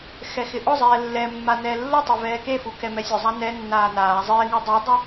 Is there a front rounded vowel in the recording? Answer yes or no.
no